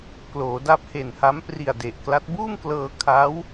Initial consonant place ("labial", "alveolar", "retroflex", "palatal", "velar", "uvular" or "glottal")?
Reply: velar